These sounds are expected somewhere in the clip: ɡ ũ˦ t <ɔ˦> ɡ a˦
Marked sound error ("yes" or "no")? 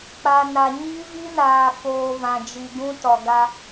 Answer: yes